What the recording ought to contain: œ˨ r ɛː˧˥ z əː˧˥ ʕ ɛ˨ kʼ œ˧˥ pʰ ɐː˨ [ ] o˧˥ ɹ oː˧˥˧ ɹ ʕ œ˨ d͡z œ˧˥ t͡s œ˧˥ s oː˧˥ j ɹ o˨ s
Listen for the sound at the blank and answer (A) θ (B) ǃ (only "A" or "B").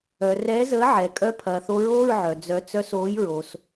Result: A